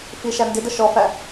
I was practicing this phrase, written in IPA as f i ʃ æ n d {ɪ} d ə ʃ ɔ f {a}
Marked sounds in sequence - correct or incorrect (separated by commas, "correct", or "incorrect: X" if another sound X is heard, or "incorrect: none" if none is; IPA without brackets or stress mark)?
correct, incorrect: æ